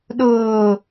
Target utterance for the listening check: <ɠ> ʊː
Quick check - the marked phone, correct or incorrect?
incorrect: ɗ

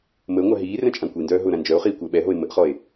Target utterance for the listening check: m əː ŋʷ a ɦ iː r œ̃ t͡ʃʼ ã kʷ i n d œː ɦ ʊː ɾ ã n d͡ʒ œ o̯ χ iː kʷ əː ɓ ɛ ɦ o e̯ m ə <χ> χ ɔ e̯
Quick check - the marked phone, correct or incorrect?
incorrect: ʔ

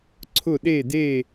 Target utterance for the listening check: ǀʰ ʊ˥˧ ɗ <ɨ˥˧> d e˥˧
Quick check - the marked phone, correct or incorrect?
incorrect: e˥˧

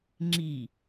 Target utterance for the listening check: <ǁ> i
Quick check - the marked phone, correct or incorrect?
incorrect: ŋ͡ǁ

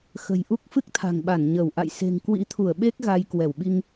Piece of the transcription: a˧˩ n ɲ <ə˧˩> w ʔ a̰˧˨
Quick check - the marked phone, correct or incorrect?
correct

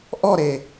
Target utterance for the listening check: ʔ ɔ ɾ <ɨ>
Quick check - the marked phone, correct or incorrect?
incorrect: e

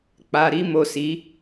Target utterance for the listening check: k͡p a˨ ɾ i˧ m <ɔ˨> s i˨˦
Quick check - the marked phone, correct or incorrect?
incorrect: o˨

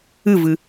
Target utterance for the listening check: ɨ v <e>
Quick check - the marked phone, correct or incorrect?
incorrect: ɨ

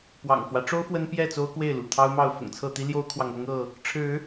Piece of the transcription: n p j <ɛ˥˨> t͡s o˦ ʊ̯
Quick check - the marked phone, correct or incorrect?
correct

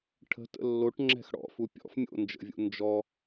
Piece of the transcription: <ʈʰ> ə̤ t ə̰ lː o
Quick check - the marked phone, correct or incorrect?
correct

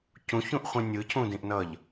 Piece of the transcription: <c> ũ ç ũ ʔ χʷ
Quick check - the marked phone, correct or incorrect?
correct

